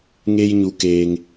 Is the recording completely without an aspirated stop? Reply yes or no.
yes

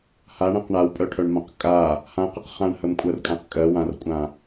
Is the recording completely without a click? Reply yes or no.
yes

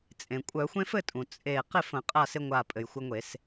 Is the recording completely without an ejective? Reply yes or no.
no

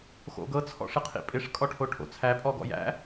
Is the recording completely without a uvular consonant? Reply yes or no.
no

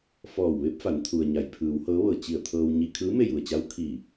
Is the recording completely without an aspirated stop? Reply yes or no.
no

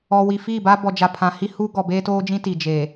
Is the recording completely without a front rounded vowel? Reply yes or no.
yes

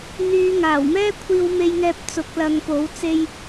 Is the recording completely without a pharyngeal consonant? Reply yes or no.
yes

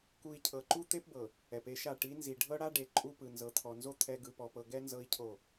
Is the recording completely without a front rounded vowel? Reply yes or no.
yes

